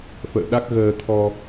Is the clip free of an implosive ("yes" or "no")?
no